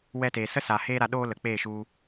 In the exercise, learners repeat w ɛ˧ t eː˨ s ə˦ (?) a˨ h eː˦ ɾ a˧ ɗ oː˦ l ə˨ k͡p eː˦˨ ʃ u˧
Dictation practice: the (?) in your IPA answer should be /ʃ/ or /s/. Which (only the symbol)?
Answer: s